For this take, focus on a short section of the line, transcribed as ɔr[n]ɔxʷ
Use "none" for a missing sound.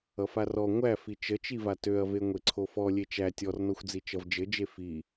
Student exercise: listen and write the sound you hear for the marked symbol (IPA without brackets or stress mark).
n